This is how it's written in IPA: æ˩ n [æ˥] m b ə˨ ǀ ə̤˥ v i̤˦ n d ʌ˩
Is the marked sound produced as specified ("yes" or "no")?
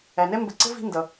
no